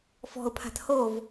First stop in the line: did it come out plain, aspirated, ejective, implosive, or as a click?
aspirated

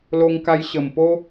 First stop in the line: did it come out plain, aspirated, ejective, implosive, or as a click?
plain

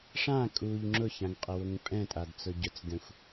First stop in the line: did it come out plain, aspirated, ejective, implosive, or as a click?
ejective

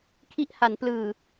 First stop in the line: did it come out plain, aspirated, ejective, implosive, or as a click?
aspirated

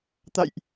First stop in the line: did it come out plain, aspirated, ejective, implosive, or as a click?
plain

